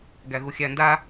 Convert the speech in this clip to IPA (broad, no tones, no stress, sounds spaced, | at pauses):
ɡ æ ɣ u xʲ æ n d a